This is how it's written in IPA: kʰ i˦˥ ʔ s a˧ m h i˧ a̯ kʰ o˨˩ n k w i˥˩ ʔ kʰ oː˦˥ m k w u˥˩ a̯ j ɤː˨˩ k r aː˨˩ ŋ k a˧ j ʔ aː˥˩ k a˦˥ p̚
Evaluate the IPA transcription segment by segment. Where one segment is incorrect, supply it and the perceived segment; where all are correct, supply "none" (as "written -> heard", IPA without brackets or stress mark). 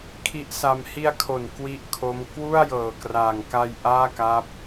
oː˦˥ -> o˦˥